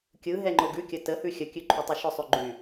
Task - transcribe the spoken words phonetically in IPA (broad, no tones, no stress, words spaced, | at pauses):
kʲɯ ɦɛŋ͡ǃoɡʉkʲə təhʉ xʲəkʲʉ ǃʰytˤyʃʊsˤʉ ɡ͡ǃy